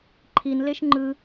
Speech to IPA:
ǃʰ i n l e ʃ ŋ͡ǃ ɯ

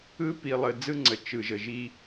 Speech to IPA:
ɯ˦ p i˨ lˠ ə˨ d͡z ɯ˦ ŋ͡ǀ ə˨ t͡ʃ ɯ˨ ʒ ə˨ ʒ i˦

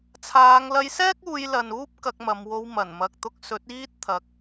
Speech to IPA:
t͡sʰ aː˨˧ ŋ l ɐ˧ j s ɛː˥ k̚ uː˧ j l ɐ˨ n uː˥ p̚ k ɐ˧ k̚ m ɐ˨˧ m w o˧ w m ɐ˨˩ n m ɐ˨ k̚ t̪ ʊ˧ k̚ s ɵ˨˥ t̚ iː˥ t̚ t̪ʰ ɐ˨˥ k̚

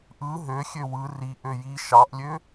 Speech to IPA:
ʔ ɯ ɦ ø xʲ ø w ɯ r i ʔ ø j i ʃ ɑ ʔ lʲ ø

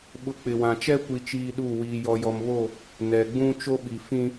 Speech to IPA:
ɓ ʊ˦ k͡p ɪ˨ w ã˨ t͡ʃ ɛ˦ kʷ i˦ t͡ʃ iː˦ ɗ u˦˨ w iː˨ j ɔ˨ j ɔ˨ m β o˦˨ | n ɛ˨ ɡ͡b ũ˦ t͡ʃ o˦ ɓ i˨ f ĩ˦

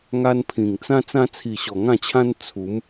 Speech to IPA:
ŋ a˧ n pʰ ĩ˨˩ ŋ t͡s ã˦ t͡s ã˧ t͡sʰ i˨˩ ɕ ɔ˨˩ ŋ ã˥˧ t͡ɕʰ ã˦ n t͡sʰ u˨˦ m

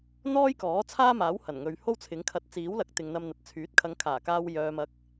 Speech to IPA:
n̪ ɔː˥ j k ɔː˨˥ t͡sʰ aː˥ m aː˨˥ w h ɐ˨˩ n ŋ ɵ˨ ɥ h o˥ w t͡sʰ ɪ˨˥ ŋ kʰ ɐ˧ t̚ t͡s iː˨˥ w l ɐ˨˥ k̚ t̪ ɪ˨ ŋ n̪ ɐ˧ m n̪ ɐ˨ t̚ t͡sʰ yː˨˥ t̚ kʰ ɐ˨˧ ŋ kʰ aː˨˩ k aː˧ w j œː˨ m ɐ˨ k̚

